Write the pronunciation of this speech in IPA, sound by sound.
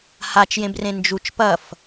h a t͡ʃ j ẽ b r ẽ n d͡ʒ u t͡ʃ p ɐ f

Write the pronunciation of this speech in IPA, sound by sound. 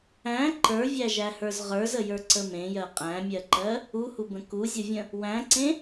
æ̃ ǃ ə˞ vʲ æ ʒ æ h ə˞ z ʁ ə˞ z ə j ə˞ ǀ ə m ẽ j ɜ qʼ æ̃ mʲ ɜ ǃ ɜ | u h u b ə̃ k u zʲ ə vʲ ə̃ | w æ̃ ǀ ẽ

